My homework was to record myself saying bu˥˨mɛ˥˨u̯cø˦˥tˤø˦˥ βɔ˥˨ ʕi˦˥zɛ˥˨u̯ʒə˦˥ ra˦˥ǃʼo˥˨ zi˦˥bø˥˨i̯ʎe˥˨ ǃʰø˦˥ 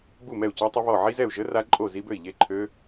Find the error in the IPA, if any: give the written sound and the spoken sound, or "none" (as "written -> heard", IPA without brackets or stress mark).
none